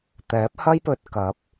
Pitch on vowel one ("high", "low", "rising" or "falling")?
rising